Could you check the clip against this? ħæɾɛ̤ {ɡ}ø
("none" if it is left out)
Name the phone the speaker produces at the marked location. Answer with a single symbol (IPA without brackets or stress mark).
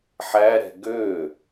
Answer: ɡ